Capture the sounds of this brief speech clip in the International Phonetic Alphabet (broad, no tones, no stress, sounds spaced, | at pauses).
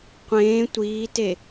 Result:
qʷ ẽː tʷ iː t e